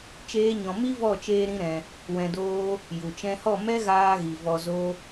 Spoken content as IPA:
t͡ʃ eː˦ ɲ ɔ̃˧ m i˦ v ɔ˦˨ t͡ʃ eː˧ ɾ ĩ˧ ɾ ɛ̃˧ | w ɛ̃˧ d oː˦ | j u˨ t͡ʃ ɛ̃˧ h ɔ˦˨ m ɛ˦ ɣ aː˧ ɣ i˨ v ɔ˧ z o˦

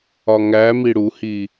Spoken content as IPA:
ɒ ŋ æ m i ɽ u h i

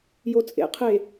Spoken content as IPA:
j o t͡sʼ ḛ qʰ e

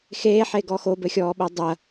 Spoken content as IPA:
x eː ħ e ɡ ɔ x o b ɘ xʲ ɔː ɓ ɐ dˤ ɐ

